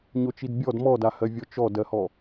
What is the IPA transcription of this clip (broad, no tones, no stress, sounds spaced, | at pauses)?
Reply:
ɲ o t͡ʃ i d bʲ ɔ d m ɔ d a h ɜ vʲ ɔ t͡ʃ ɔ d ɜ h ɔ